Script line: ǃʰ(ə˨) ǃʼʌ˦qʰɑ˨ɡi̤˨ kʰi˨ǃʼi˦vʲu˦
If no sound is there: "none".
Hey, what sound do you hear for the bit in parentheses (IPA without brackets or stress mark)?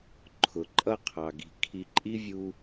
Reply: ʊ˨